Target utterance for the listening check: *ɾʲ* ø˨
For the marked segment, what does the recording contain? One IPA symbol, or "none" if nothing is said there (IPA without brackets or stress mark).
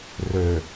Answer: r